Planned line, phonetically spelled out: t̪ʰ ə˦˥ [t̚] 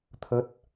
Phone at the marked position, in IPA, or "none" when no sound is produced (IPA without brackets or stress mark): t̚